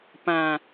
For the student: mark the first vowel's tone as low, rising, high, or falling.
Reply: low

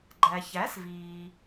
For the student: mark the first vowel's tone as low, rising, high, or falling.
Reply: low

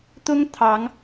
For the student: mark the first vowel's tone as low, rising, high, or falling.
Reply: high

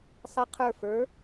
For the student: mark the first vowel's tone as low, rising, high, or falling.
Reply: rising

